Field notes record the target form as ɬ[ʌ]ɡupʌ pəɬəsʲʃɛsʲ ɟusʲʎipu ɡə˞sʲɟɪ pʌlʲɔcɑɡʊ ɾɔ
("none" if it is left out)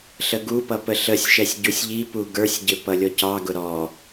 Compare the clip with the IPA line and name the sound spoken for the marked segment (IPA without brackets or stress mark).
ə